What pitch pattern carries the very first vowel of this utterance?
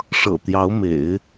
low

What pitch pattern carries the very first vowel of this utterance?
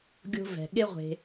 high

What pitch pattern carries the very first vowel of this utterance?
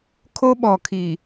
high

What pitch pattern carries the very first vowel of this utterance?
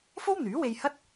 high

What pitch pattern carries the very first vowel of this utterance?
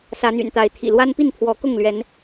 rising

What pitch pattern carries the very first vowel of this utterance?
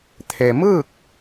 low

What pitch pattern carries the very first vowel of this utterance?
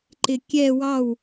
low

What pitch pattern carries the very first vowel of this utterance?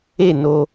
falling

